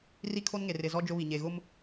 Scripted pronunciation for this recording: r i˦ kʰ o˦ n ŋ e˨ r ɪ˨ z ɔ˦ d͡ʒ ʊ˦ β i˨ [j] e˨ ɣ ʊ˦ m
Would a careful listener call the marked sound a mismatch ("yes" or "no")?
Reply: yes